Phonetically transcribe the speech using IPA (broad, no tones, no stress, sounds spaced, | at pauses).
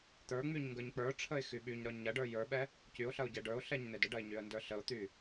t̪ ə˞ ŋ͡m y ɲ ŋ ɡ ə˞ ɲ k͡p ə˞ ʈ͡ʂʰ ə ɪ̯ x y ɓ y ɲ ɾ ɒ ɲ ɐ ɖ ə˞ j ə˞ ɓ ɛ | c y ʊ̯ ɬ ɐ ʊ̯ ɟ ɛ ɖ ə˞ ʊ̯ ɬ ɛ ɲ n̪ e d ə ɖ ɐ ɪ̯ ɲ y ə̯ n d ə˞ ɬ ə ʊ̯ t̪ y